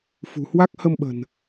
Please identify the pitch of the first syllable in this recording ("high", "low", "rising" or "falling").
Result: low